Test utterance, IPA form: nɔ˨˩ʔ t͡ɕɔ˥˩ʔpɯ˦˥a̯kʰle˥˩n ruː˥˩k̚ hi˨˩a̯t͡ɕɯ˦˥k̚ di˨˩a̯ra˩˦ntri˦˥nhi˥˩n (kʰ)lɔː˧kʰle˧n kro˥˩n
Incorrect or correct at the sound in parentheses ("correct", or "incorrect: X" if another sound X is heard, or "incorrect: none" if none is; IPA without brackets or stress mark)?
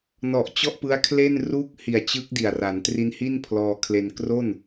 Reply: incorrect: pʰ